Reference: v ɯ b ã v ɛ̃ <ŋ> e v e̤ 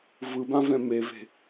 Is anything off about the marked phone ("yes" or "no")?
yes